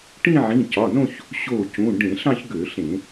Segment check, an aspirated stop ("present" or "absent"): absent